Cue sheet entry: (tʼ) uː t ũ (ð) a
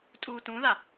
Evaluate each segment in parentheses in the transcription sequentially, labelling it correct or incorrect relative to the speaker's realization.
correct, correct

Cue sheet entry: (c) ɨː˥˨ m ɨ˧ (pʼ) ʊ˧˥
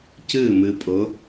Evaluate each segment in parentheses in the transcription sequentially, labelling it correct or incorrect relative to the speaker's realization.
correct, correct

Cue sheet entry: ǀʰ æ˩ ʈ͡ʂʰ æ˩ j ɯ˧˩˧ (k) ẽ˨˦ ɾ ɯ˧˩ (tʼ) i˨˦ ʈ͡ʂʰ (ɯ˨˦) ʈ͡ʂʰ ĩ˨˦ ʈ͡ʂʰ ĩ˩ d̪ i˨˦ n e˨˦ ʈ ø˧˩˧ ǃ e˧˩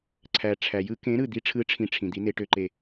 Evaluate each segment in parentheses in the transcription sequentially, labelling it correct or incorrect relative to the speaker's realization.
correct, incorrect, correct

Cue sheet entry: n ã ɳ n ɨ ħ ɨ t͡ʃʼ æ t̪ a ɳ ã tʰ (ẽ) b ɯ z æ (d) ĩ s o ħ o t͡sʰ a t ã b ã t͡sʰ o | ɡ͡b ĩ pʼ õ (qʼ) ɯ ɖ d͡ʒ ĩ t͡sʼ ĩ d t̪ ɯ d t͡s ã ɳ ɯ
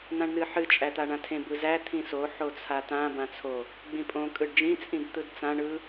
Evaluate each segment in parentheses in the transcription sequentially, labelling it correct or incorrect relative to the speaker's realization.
correct, incorrect, incorrect

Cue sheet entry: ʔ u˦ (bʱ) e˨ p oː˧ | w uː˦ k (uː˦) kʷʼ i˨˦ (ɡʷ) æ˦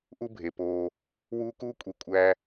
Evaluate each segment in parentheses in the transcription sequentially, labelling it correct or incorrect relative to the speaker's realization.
correct, correct, incorrect

